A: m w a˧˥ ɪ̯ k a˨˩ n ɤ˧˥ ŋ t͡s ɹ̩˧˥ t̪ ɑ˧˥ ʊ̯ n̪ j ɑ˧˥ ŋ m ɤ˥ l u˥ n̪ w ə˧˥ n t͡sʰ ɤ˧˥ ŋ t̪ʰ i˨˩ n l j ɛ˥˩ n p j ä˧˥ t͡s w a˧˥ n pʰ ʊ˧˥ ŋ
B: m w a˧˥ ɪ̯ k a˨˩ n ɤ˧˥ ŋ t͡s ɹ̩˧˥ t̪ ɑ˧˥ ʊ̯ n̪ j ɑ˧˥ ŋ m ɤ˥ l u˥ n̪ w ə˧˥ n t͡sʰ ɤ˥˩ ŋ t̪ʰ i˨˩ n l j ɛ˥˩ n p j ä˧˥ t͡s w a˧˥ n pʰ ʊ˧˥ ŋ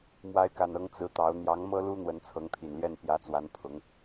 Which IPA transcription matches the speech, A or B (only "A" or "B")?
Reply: A